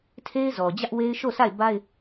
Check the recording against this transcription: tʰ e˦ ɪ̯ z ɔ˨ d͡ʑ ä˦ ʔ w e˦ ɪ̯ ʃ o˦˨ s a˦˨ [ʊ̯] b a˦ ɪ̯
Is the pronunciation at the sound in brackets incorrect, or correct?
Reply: incorrect: ɪ̯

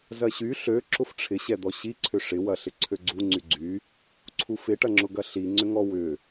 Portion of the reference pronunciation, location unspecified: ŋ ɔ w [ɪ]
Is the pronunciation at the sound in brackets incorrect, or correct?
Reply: incorrect: ʏ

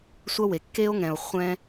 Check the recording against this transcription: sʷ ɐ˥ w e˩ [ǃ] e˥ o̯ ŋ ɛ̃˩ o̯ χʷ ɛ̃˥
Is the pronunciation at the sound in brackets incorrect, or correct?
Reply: incorrect: kː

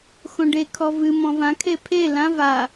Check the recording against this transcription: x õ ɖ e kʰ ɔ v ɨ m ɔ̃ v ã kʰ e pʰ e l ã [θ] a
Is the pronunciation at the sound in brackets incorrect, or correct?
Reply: incorrect: v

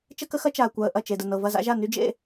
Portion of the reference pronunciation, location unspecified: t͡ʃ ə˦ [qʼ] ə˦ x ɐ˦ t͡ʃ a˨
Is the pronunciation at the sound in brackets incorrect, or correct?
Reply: incorrect: k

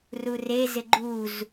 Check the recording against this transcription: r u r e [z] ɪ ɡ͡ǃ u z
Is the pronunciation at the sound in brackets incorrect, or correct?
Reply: correct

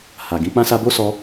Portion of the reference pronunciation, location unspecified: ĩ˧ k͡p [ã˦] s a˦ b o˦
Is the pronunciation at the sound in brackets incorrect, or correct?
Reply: correct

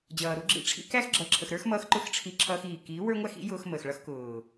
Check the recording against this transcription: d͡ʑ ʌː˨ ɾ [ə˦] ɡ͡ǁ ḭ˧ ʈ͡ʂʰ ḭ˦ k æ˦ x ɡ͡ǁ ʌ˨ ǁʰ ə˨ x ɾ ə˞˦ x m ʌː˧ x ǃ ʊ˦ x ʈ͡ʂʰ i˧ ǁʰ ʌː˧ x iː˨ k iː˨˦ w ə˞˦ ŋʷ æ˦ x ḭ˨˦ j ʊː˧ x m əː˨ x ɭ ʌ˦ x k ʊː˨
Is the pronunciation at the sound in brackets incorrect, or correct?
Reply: incorrect: ʊ˦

